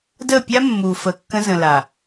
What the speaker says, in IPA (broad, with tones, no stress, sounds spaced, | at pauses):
d ə˦˨ pʲ a˦ mː u˨ f ə˨ kː ə̃˦ z ə̃˨ l a˨